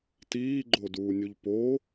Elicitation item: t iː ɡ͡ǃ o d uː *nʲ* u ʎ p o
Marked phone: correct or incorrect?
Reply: correct